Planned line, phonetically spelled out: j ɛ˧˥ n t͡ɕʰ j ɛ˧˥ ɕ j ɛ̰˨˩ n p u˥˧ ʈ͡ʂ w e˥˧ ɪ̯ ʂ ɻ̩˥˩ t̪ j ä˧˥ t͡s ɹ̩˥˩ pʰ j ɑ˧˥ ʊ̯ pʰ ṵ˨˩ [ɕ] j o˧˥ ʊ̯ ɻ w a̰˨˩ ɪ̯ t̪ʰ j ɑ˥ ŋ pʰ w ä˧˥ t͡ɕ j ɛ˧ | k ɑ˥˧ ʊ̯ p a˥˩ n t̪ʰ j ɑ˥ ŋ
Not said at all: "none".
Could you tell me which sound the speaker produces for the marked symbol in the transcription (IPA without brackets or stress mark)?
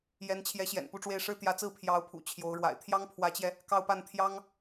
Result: t͡ɕʰ